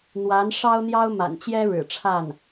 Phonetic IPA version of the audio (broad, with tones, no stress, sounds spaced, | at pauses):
n̪ w a˧˥ n ʂ ɑ˥ ʊ̯ n̪ j ɑ˥ ʊ̯ m a̰˨˩ n t͡ɕ j ɛ˥ ɻ ɻ̩˨˩ ʈ͡ʂʰ a˥˩ n